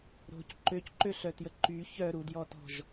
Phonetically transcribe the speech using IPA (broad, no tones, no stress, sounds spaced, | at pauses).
ɾ o̤ c ǃ ø c ǃ ø ɬ œ t j ə ǃ y ç œ ɾ u d j ɔ t ɔ̤ ʒ